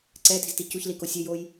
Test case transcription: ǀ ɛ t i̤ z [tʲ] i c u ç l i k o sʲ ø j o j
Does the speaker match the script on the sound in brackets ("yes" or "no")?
no